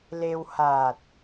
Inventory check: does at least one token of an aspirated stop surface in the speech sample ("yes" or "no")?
no